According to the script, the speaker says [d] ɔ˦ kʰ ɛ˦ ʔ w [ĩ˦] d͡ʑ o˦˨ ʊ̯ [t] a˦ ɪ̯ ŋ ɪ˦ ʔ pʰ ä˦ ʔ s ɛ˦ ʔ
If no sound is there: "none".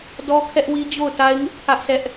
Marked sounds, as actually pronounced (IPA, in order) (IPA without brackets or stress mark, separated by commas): d, i˦, t